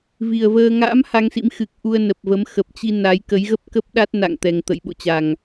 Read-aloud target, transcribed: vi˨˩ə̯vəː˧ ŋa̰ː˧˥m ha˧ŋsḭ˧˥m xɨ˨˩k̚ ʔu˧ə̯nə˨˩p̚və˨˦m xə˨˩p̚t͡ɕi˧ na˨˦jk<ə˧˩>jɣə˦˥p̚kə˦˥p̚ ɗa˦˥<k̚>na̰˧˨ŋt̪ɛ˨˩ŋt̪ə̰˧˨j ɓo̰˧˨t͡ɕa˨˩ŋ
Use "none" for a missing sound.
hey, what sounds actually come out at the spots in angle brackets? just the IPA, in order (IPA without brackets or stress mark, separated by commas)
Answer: ə˨˦, t̚